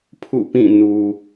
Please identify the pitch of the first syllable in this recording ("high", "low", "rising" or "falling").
falling